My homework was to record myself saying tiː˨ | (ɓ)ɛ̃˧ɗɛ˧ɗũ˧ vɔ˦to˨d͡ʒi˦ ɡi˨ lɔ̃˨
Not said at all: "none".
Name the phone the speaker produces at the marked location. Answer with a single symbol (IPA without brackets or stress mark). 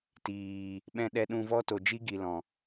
ɓ